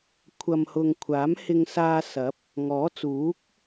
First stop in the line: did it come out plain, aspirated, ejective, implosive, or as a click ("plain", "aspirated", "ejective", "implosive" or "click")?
aspirated